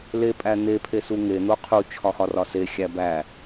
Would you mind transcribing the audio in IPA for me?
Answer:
l e pʼ æ n̪ e pʰ e s u ŋ e n̪ o qʰ u t͡ʃʰ ɒ x ɒ r ɒ s e xʲ æ b æ

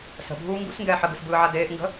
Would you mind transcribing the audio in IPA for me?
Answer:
s ə̤ bʱ uː ŋ ɡ ṵ s ŋ ɡ ɛː ħ ə ɡ ɯ s b ɯː ʕ a d eː ʔ ŋ ɡ ə̤

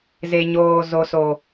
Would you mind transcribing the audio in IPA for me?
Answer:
z e˨ ɲ oː˨ z o˨ s o˨

